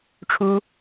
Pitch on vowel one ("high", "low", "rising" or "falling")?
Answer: high